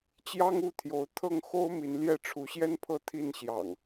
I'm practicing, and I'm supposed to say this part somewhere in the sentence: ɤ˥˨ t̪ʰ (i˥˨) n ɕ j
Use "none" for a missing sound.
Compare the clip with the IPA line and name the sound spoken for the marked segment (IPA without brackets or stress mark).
i˥˨